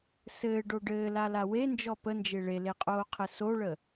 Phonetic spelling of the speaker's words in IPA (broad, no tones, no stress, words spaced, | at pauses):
sɘːɖo ɖɘːlala wend͡ʒɔ pənd͡ʒe ɭeleqʼoːqʰɘ soɭə